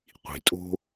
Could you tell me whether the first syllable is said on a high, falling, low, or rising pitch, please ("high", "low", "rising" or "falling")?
low